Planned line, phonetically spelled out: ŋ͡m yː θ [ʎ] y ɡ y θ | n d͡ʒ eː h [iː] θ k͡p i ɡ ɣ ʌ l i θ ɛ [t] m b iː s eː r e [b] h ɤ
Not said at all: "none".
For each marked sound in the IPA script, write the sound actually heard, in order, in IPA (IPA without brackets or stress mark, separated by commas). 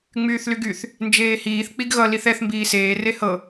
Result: l, iː, θ, none